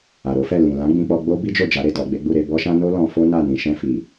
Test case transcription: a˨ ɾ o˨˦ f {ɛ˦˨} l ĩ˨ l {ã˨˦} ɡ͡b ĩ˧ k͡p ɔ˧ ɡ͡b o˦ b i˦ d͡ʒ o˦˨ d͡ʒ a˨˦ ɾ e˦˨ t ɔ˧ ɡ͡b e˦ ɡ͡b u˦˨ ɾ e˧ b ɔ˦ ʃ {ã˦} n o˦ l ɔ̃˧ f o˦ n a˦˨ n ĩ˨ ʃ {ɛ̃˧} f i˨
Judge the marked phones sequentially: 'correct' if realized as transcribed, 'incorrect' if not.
correct, correct, correct, correct

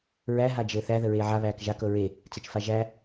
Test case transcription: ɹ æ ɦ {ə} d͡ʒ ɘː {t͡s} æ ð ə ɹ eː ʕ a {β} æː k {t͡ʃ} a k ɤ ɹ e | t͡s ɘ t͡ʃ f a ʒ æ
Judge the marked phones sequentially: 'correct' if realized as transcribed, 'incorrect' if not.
incorrect: a, incorrect: θ, correct, incorrect: ʒ

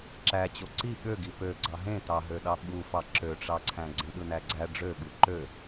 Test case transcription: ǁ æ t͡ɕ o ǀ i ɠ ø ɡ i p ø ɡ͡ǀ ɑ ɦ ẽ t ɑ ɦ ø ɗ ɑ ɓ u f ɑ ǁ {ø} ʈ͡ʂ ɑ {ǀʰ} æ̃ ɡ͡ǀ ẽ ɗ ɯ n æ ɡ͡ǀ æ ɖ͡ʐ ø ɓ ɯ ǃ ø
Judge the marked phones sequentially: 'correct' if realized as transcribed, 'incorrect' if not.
correct, correct

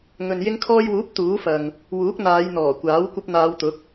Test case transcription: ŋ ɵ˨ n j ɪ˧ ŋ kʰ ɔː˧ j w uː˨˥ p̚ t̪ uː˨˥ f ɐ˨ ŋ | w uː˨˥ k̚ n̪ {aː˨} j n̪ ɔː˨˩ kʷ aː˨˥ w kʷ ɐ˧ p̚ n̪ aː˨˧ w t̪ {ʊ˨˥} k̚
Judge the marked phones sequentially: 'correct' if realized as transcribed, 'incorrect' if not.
incorrect: aː˨˧, correct

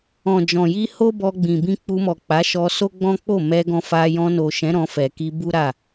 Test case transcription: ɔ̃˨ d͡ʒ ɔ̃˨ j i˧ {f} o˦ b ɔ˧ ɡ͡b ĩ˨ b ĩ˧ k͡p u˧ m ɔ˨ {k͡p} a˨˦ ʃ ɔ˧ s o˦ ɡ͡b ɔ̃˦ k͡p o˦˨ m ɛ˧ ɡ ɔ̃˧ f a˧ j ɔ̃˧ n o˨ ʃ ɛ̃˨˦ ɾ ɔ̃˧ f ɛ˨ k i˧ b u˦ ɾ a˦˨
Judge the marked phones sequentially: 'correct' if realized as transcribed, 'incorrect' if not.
incorrect: h, correct

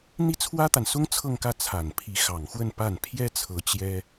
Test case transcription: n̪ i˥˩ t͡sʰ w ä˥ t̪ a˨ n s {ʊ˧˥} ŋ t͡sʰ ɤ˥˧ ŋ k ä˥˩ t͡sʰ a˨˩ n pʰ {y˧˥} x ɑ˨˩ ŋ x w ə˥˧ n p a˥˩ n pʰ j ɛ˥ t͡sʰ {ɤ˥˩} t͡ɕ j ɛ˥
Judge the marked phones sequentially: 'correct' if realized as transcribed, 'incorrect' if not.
incorrect: ʊ˥, incorrect: i˧˥, incorrect: ɤ˧˥

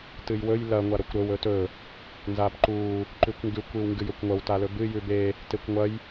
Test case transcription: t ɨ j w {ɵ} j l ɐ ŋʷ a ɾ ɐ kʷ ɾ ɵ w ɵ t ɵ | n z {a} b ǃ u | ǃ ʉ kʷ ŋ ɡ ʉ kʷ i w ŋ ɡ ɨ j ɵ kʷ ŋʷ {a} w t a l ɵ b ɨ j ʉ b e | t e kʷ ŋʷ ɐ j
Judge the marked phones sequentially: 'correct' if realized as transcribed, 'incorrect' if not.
correct, correct, incorrect: ɐ

